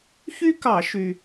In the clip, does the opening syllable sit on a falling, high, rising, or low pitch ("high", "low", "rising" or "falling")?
high